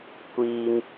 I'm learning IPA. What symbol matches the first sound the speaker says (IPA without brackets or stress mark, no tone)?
kʷ